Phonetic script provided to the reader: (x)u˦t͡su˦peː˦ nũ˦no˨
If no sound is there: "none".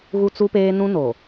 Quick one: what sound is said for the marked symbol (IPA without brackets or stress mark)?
ɣ